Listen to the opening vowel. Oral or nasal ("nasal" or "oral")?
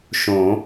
nasal